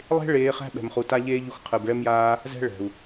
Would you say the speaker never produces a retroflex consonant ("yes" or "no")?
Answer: no